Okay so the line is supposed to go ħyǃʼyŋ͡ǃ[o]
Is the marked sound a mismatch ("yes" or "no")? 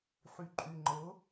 yes